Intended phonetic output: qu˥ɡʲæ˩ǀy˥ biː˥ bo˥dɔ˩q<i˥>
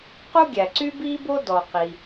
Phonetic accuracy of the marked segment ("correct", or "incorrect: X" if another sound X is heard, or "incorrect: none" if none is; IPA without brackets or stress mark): incorrect: i˩